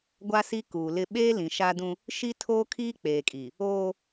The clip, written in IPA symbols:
ɡʷ a˦ s i˦ k uː˨ l ɪ˦ ɓ eː˦ l ĩ˨ ʃ a˦ d ũ˦ | ʃ i˦ tʰ oː˦ kʰ iː˦ k͡p eː˨ kʼ iː˨ | oː˦

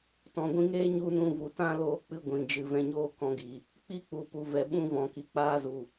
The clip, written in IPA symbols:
t ɔ̃˨ ɡʷ ĩ˧ ŋ eː˦ ɲ u˦ n ũ˧ v u˨ t ã˦ l oː˦ k͡p ɨ˦ ɡʷ ĩ˨ d͡ʒ ɨ˨ v ɛ̃˧ ɲ oː˦ k ɔ̃˧ ɡ i˨ | k͡p i˦ k͡p u˨ p u˨ v ɛ˨ ɓ ũ˧ v ɔ̃˨ k i˨ k͡p aː˦ z u˨

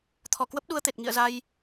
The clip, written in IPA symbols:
t̪ʰ ɔ˧˩ k w ə˦˥ p̚ ɗ u˧ ə̯ t̪ e˨˩ t̚ ŋ ḭ˧˨ ə̯ z a˧ j

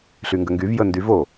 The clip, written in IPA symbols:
ɬ y ŋ ɡ ə ŋ ɡ y v j ə n d y v o

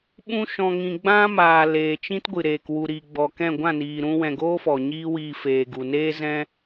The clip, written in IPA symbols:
ɓ ũ˦ ʃ ɔ̃˧ ŋ ĩ˧ ɡ͡b ã˦ m aː˨ l eː˨ t͡ʃ ĩ˦ t ɡʷ ɨ˨ ɾ eː˨ k w u˨ ɾ i˨ ɡ͡b ɔ˨ k ɛ̃˦˨ ɡʷ ã˦˨ n iː˨ ɾ ũ˧ w ɛ̃˨ ɡ oː˦ f ɔ˨ ɲ iː˦ w iː˧ f eː˨ ɡ u˨ n eː˦ z ɛ̃˦

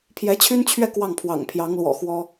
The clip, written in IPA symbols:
pʰ j ɛ˧˥ t͡ɕʰ y˥ n t͡ɕʰ ɥ ɛ˥˧ k w ɑ˥˩ ŋ pʰ w ɑ̰˨˩ ŋ pʰ j ɑ˧˥ ŋ l w ɔ̰˨˩ x w ɔ˥

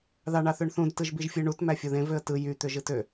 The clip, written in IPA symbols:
ð ɑ ɳ ɑ θ ø ɳ θ ũ d t ɯ ʒ b i ʒ fʲ ɯ ɳ u t m æ fʲ o ð ẽ v ø ə̯ t ɯ j y t̪ ø ʒ ɯ t ø

